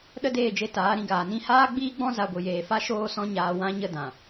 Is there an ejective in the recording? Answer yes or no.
no